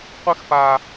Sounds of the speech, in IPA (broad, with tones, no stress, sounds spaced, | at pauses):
qʷ ɘ˦ x p a˨